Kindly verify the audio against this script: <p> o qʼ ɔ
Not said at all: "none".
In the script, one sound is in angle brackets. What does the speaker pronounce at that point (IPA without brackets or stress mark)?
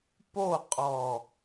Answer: p